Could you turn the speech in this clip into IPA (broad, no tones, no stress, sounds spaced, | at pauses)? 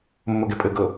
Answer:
mː ʊ ɡ e pʼ ɘ ɡ ɤ